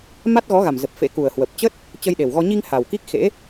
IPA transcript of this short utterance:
ma˦˥t̚ɣɔ˨˦ɣa˨˩m zə˨˩p̚fḛ˧˥ku˨˩ə̯hwə˨˩p̚ t͡ɕə˦˥t̚ | t͡ɕə˧jɗe˨˩wɣɔ˧ ɲi˧ŋ ha˨˩wki˦˥k̚xḛ˧˥

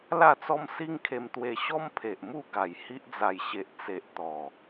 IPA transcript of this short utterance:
la˥˧t͡sɔ˦m si˦ŋkʰe˧mt̪we˧ɕɔ˦m pʰe˨ʔmu˥˧ɡa˨˩j hi˦ʔd͡za˧j ɕe˨ʔt͡se˨ʔt̪ɔ˨˩

